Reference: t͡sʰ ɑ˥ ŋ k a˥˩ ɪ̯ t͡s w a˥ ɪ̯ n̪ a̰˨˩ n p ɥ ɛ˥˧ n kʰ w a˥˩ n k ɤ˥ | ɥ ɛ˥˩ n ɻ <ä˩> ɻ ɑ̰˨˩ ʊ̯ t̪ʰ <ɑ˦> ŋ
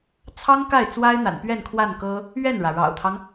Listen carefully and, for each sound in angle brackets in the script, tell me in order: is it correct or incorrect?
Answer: correct, correct

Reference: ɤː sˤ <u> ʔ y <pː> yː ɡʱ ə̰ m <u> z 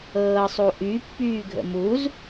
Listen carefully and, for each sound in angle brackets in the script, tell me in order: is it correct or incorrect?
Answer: correct, correct, correct

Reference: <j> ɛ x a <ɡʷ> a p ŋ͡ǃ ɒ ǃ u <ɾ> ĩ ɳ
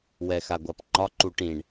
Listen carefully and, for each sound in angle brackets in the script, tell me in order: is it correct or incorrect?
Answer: incorrect: w, correct, incorrect: ʈ

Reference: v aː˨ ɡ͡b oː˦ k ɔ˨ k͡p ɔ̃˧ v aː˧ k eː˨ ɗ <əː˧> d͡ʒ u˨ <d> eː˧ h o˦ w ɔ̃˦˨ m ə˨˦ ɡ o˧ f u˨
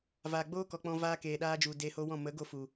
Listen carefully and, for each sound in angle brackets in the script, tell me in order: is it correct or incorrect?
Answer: incorrect: aː˧, correct

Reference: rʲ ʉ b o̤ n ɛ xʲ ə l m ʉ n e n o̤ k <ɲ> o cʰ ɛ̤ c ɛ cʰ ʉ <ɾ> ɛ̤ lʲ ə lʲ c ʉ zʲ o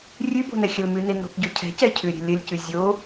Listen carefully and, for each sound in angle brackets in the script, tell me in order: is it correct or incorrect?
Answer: incorrect: ɟ, incorrect: ɾʲ

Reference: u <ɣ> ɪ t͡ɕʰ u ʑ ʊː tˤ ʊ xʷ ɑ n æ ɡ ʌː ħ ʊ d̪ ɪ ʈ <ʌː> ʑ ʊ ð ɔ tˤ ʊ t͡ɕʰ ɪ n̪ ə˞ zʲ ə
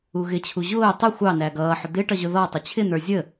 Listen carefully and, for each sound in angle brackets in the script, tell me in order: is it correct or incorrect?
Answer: correct, incorrect: ʌ

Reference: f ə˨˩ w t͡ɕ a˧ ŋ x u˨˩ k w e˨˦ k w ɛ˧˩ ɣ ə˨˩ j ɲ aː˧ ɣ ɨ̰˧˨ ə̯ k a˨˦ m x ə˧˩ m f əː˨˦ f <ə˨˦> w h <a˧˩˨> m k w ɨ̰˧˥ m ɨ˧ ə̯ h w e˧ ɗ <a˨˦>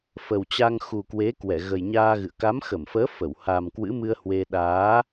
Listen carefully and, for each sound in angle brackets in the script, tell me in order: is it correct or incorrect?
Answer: incorrect: ə˧˩, incorrect: a˨˩, incorrect: aː˨˦

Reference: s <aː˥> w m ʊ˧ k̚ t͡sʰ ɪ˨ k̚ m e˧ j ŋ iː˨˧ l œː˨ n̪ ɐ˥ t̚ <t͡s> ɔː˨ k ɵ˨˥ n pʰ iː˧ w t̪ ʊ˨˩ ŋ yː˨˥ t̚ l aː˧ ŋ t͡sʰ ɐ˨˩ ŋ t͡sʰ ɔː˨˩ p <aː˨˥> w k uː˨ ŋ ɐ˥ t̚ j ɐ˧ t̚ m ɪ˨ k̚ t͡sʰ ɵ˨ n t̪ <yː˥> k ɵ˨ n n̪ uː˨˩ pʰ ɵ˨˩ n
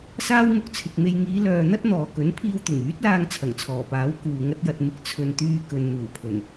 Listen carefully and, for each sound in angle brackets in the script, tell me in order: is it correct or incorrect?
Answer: correct, incorrect: n̪, correct, incorrect: yː˧

